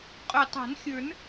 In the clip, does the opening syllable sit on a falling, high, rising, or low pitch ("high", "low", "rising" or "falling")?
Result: low